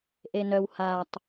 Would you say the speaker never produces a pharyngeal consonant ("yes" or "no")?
yes